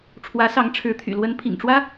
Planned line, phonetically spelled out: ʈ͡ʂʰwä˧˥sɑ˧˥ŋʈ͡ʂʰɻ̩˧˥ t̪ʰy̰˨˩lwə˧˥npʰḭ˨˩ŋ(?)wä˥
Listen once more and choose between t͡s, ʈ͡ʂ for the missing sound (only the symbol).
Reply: ʈ͡ʂ